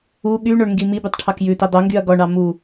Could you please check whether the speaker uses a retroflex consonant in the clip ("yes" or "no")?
yes